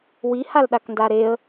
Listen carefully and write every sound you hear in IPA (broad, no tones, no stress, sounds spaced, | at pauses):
w i h a l ɗ a k n d a ɾ e ə̯